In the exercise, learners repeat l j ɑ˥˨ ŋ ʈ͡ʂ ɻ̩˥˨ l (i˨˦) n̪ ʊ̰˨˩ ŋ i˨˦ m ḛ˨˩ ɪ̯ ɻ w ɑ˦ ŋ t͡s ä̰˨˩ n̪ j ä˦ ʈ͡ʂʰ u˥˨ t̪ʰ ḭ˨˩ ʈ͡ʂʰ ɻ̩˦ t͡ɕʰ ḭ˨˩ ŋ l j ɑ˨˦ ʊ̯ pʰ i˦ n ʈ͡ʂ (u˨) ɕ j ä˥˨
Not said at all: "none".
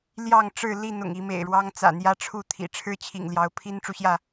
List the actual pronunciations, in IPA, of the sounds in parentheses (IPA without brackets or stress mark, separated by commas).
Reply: i˥˨, u˨